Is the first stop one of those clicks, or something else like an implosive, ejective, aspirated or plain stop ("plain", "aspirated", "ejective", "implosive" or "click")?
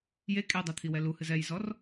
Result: ejective